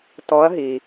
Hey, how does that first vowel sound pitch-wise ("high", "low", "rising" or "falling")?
rising